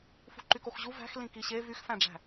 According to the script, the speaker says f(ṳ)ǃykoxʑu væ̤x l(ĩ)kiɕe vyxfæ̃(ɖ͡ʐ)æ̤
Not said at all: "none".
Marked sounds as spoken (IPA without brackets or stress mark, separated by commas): ṳ, ĩ, ɖ͡ʐ